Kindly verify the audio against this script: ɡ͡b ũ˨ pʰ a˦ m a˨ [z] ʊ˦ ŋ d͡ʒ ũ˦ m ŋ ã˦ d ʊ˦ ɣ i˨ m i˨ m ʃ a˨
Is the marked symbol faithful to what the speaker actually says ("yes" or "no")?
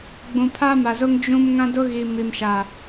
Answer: yes